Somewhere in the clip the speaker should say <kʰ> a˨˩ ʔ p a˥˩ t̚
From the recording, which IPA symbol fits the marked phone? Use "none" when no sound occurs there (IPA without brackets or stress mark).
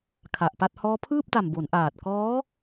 kʰ